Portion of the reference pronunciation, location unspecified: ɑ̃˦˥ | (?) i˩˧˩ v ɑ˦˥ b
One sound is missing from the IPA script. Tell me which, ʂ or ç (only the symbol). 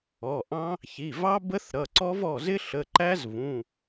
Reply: ç